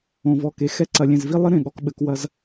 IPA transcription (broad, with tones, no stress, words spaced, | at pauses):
õ˨vɔ˨ke˨ xɛ˦ǀɐ˨ lʲẽ˨zvi˦ lˠɘ˦ ɾẽ˨ ɠɔ˨kɓɘ˨˦kwɐ˦z